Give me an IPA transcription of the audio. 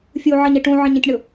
fʲ u ʕ ʌ ɲ e ʈ ũ ʕ ə̃ ɲ ə̃ tʲ ɳ ʊ

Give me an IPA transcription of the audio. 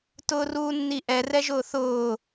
t ʊː r uː nː i ʔ ɛ r ɛ ʒ ʊː θ ʊː

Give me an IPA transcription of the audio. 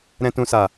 ɾ ɛ̃˨ t ũ˨ s a˨

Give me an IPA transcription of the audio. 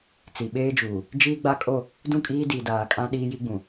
t͡s i˨ ɓ eː˦ d͡ʒ uː˨ | d͡ʒ iː˦ ɡ͡b a˦ kʼ o˦˨ | d ũ˦˨ kʼ iː˦ d i˨ d aː˨ kʼ ã˦ ɗ iː˦ j i˦ ɡ͡b ũ˨

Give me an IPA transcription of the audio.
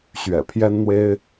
ɕ ɥ ɛ̰˨˩ pʰ j ɛ˥ n n̪ w e˥ ɪ̯

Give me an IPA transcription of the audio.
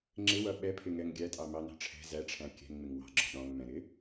ŋ͡ǁ ɪ w ʌ ɓ ɛ pʰ ɪ ŋ ɛ ŋ ɡʲ æ tʼ ɑ m ɑ n ɑ̤ ʈ͡ʂʰ ɛ̤ z æ ʈ͡ʂʰ æ̃ kʲ ɛ̤ ŋ ŋ͡m ɪ ŋ w ɑ̤ ɡ͡ǁ ɔ̤ ɗ ɔ̃ ŋ m ɛ̃ ɾ ɪ

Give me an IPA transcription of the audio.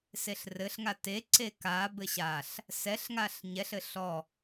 s e ɬ r ɘ ɬ ŋ a t e ǀ e k a b ɘ ɕ a ɬ | s ɛ ɬ ŋ a ɬ ɲ ɛ ɬ ɘ ɬ ɔ

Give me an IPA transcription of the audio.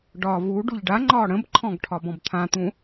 ɖ ɒ v u ɖ u ʎ ɖ a ŋ͡ǃ ɒː ɽ ə̃ b ǃʰ ɔ̃ ɡ ʈʰ ɒ b ɔ̃ b t̪ʰ ã t̪ ũ

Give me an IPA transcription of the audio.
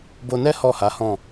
b o˧ n ɛ˦ h ɔ˦˨ h a˨˦ h ɔ̃˦˨

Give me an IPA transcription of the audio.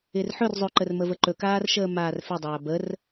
ɪː r ħ ɵ r zˤ ɵ ǃ ə r m ə v ə ǃ ɵ k aː r ʃ əː m aː r f ɪ dˤ aː b ə r

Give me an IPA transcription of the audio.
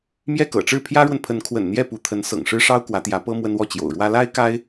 m j ɛ˥˩ k ɤ̰˨˩ ʈ͡ʂ ɻ̩˥˩ pʰ j ä˥ ɻ w ə˨ n pʰ ə˧˥ n kʰ w ə̰˨˩ n n̪ j ɛ˥˩ p u˧˥ t̪ʰ ə˧˥ n s ɤ̰˨˩ ŋ ʂ ɻ̩˥ ʂ ɑ˥ ʊ̯ k w ä˧˥ t̪ j ä˧˥ p ɤ˥ m w ə˥ n w ɔ˥˩ t͡ɕ j o̰˨˩ ʊ̯ ɻ w ä˥ l a˥ ɪ̯ k a˥ ɪ̯

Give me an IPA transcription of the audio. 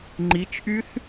ŋ͡ǃ i t͡ʃ ʔ y θ

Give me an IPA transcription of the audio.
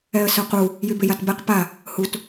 ɛ ə̯ s œ q u | j y b ɪ j a t b ɛ q p a | h u t

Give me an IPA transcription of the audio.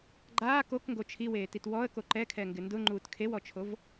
ɡ͡ǃ aː k o k ŋ ɡ o t͡ʃʰ i w eː t i t w ɔ ə̯ k o ǃ ɛ kʰ ɛ ŋ ɡ ɪ n d ʊ ŋ͡ǃ uː t kʰ e w ɔ t͡ʃʰ o v

